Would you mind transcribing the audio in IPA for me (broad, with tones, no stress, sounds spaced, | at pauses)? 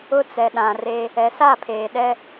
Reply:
ʊ˦ t͡s ɛ˨ ɗ ã˨ r e˦ | ɛ˨ s a˦˨ pʰ eː˨ ɗ ɛ˦